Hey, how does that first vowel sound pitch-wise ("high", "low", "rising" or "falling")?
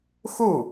falling